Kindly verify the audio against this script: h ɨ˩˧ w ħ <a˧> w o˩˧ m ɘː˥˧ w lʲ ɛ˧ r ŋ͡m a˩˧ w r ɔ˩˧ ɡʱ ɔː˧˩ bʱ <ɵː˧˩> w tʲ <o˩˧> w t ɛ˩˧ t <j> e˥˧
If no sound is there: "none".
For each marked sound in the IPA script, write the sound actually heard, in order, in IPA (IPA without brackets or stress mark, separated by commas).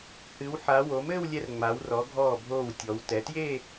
a˩˧, oː˧˩, ɔ˩˧, j